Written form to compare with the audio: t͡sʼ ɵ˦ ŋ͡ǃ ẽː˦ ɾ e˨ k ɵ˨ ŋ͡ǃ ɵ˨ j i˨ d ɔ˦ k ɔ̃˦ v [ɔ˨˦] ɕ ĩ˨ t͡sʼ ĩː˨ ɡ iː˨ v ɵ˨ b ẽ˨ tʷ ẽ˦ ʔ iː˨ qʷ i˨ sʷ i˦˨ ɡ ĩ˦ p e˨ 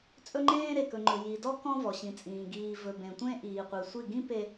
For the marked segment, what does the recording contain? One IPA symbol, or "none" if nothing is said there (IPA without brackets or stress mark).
ɔ˨